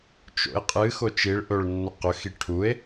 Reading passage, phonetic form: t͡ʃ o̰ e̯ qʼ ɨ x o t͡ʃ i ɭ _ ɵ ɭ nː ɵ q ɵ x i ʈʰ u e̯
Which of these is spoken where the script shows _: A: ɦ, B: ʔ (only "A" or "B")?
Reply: B